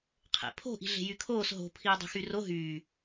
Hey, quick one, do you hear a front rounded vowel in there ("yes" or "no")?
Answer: yes